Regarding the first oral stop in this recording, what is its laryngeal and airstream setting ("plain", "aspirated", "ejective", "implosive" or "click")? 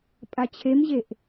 ejective